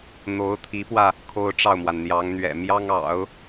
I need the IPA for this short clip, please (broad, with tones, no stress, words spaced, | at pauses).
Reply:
n̪o˧˥ʊ̯t̪ʰi˧˥pwä˧ | kʰo˥ʊ̯ʈ͡ʂɑ˥˩ʊ̯mwa˩n n̪jɑ˧˥ŋ n̪ɥɛ̰˨˩ mjɑ˥ŋɑ̰˨˩˦ʊ̯